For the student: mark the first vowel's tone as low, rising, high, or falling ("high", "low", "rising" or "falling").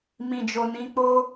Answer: low